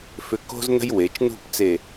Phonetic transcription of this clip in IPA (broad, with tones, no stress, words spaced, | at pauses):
fʏ˧ko̤˥znə̤˥j we˩˧t͡ʃnṳ˥˧pt͡se˧˩